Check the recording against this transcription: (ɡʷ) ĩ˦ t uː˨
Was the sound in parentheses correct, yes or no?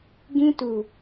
no